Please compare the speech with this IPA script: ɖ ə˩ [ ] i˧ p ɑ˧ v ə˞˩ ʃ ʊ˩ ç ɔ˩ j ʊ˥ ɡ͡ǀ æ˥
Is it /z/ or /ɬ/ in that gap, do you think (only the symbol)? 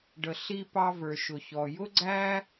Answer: ɬ